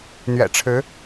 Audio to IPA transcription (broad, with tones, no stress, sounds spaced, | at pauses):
n̪ ɥ ɛ̰˨˩ ʈ͡ʂʰ ɻ̩˧˥